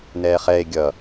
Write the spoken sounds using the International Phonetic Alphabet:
nɛːχɛe̯ ɡʲʌ

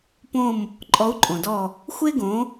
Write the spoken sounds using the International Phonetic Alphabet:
põ˦˨m | ǃʼɔ˨˥u̯ǃʼõ˩dɔ˦˨ | xʷe˥ɡõ˨˥

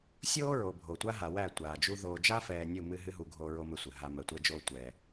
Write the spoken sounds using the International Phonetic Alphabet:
sʲoː˦ɹo˨ bʱo˨tʷa˦ ɦa˨wæ˦˨tʷaː˨d͡ʒu˦ ðoː˨d͡ʒa˦fɛː˨ nʲu˦˨mɨ˦ɦɨ˦ɦu˨ ɡʱoː˦ɹo˦mɘ˦sʷɘ˨ ɦa˦ mɜ˨tʷɛ˦d͡ʒoː˦ tʷɛː˨

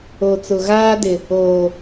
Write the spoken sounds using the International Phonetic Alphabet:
o˨t͡sʊ˨ ɣaː˦dɪ˨ | oː˨

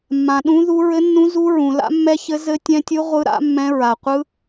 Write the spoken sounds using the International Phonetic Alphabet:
mːã˧ɗũ˦˥ðu˦˥ ɹɘ˦˥nːũ˦˥zu˦˥ ɹũ˧la̰˦˥mːɛ˦˥çɘ˦˥ zɘ˦˥ tʲɛ̃˦˥tʲɯ˦˥ ʁʷɯ˦˥ɾa̰˦˥ mːɛ̃˦˥ɹa˧qʷɯ˦˥

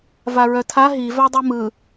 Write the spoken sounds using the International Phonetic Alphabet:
vaɹœtʰa ɦi vadˤɯmɯ

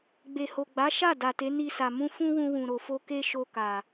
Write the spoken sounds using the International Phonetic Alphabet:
ɡ͡be˨ho˨ɡ͡ba˨˦ ʃa˦˨ da˨te˨˦ni˧sa˨ mũ˧fũ˦wũ˧wũ˨ ɾo˨fo˧ ke˦ʃo˧ka˨

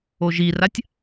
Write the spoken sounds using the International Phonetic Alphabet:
oʒiratʲ

